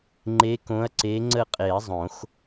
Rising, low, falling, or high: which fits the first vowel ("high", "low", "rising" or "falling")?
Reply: rising